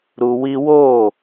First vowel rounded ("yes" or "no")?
yes